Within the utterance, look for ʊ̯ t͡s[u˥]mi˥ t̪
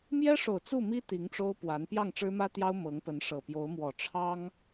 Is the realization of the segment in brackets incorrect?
yes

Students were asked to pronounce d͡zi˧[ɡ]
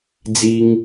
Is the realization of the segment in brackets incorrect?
yes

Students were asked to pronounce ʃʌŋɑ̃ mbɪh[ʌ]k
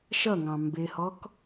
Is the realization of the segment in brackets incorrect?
yes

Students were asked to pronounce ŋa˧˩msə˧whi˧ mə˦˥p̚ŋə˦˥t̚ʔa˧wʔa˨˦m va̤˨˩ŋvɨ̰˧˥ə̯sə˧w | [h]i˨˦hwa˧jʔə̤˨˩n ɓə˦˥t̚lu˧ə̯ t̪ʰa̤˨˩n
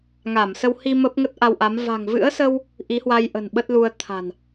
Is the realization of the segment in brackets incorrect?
yes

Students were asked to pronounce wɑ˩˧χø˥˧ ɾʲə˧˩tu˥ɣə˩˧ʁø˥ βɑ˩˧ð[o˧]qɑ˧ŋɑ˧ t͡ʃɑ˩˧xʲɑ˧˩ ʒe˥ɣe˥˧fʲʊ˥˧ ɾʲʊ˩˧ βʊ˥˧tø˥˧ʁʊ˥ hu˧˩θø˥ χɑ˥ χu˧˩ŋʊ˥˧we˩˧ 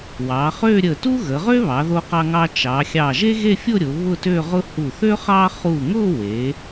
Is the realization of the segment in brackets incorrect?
no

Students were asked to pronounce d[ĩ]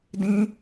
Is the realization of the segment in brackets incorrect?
no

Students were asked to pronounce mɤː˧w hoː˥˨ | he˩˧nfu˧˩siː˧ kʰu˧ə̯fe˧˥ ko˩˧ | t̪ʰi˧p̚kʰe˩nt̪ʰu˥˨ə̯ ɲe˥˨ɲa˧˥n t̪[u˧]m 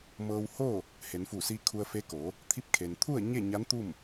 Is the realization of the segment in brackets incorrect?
yes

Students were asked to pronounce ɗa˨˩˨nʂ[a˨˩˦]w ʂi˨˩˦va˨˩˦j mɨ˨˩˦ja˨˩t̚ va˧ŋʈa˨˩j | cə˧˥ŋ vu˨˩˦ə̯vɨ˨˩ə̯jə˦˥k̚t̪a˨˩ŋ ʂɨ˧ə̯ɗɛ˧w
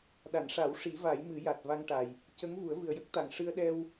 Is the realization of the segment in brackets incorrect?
no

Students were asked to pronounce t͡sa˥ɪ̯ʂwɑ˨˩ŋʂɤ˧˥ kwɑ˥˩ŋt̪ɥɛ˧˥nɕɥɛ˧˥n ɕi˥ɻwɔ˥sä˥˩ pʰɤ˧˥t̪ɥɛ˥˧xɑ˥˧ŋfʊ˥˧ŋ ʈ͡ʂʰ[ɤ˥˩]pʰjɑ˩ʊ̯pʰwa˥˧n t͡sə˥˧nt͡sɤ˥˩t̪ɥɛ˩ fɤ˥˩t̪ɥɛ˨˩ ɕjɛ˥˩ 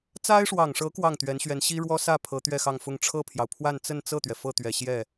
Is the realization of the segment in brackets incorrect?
no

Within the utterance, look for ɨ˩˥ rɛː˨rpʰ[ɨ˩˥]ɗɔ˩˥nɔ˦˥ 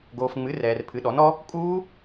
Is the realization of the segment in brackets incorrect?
no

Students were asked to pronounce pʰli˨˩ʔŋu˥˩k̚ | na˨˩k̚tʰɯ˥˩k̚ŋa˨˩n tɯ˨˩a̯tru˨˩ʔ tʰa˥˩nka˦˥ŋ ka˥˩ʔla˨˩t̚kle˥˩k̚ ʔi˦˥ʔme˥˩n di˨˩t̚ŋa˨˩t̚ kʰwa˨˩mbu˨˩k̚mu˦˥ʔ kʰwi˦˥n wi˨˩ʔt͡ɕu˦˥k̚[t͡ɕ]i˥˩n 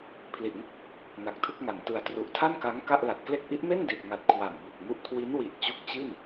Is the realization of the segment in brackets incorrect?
no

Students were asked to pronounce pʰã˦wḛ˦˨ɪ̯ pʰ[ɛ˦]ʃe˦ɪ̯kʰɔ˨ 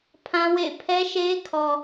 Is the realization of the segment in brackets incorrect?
no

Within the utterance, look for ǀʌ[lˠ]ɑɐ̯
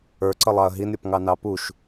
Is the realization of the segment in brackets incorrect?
no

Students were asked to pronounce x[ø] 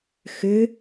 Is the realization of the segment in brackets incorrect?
no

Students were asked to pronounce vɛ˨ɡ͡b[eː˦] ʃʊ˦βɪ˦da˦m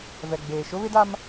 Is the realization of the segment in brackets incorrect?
yes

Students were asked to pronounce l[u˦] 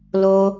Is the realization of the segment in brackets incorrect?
yes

